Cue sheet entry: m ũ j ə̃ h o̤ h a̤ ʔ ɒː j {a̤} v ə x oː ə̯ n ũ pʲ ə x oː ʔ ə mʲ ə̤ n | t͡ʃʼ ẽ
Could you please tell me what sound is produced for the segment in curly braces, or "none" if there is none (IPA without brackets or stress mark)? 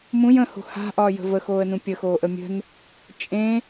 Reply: ə̤